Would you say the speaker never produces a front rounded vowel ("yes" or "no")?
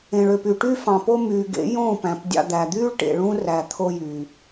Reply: no